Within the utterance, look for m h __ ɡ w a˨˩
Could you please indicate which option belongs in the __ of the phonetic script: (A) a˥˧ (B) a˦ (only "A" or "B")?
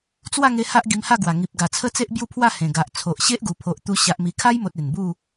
A